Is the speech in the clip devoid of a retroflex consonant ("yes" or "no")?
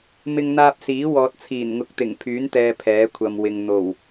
yes